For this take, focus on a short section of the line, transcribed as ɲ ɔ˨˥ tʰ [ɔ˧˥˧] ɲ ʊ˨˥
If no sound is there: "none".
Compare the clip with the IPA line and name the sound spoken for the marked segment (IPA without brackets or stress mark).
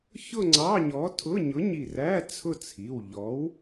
ʊ˧˥˧